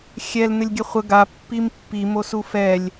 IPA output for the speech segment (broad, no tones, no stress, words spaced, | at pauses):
xʲɛl nɘlʲɡʲɘχʷə ɡa pːimpːi mosufɛlʲ